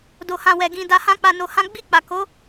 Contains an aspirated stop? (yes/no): no